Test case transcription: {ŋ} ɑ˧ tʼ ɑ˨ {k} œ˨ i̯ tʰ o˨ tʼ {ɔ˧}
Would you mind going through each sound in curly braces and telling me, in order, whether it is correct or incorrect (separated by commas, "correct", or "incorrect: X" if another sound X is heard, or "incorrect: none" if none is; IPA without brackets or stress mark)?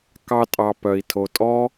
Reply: incorrect: k, incorrect: p, incorrect: ɔ˦